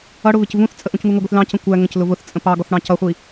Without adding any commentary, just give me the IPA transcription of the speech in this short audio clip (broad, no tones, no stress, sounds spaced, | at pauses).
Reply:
ʌ ɽ ʊ β ɪ c v ũ θ t͡sʼ ə ʔ ũ c ŋ u ŋ ə ɡʷ i θ l ɑ̃ c ə̃ kʷ æ ŋ ə̃ c l ʊ v ʊ θ t͡sʼ ə̃ p ɑ ɡ ɔ θ ɽ ɑ̃ c ʌ χʷ i